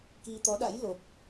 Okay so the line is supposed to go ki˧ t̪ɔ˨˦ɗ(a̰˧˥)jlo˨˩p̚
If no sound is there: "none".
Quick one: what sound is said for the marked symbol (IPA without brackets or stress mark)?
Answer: a̰˧˥